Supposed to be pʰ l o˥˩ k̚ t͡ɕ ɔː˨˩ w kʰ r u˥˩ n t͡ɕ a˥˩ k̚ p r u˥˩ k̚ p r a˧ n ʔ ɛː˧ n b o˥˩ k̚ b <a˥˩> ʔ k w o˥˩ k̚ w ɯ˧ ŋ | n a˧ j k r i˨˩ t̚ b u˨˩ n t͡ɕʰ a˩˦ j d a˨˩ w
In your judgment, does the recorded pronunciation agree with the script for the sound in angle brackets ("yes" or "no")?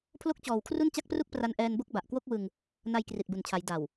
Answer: no